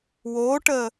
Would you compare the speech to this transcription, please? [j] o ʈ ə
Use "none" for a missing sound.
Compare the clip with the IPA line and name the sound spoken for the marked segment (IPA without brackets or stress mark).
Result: w